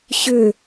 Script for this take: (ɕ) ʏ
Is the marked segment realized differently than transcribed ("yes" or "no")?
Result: no